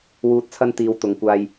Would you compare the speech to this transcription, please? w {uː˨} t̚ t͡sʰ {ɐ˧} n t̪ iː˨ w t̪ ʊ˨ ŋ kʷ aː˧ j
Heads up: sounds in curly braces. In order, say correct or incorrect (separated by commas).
correct, correct